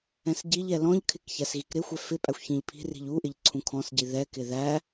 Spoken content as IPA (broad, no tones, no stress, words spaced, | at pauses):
ɛ̃sɟiʎɛ lɔ̃ʎkʰɪk çæsɣikɾɪxʷɛ fɪpʼæxʷ çĩʎpʰi̤ri̤ʎ u ʔɪʎǀʰũkʰɔ̃sɟi ðɛkɪ ðæ